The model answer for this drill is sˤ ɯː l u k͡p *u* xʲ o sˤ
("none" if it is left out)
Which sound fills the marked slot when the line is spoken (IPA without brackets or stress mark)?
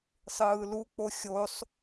o